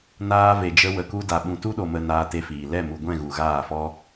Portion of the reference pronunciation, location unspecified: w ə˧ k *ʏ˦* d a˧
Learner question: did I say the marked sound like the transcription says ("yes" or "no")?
no